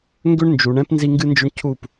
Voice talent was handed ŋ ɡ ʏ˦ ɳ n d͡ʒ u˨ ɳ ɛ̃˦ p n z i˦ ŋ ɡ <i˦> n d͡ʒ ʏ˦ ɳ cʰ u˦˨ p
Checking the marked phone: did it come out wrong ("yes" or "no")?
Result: yes